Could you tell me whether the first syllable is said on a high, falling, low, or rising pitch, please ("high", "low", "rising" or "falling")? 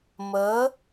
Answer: rising